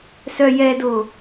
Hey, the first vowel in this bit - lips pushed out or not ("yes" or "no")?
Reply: yes